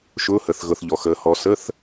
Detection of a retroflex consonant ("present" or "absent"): absent